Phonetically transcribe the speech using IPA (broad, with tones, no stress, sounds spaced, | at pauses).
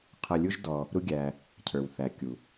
qʰ ʌ˧ lʲ u˥ ʒ d ɔ˧ | ɾ u˥ ɡʲ æ˧ | cʰ ə˞˩ w θ æ˩ kʲ u˩